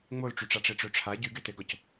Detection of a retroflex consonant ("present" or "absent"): present